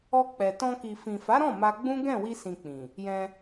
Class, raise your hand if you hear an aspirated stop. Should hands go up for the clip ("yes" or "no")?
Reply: no